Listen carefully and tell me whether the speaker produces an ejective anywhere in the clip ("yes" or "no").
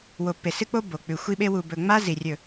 no